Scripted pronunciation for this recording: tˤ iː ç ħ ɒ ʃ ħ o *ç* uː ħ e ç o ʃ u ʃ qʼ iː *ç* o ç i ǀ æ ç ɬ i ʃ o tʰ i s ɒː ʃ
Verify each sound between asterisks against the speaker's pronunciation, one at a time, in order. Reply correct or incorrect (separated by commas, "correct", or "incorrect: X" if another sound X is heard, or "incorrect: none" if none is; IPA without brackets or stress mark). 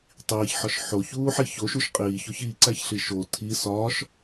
correct, correct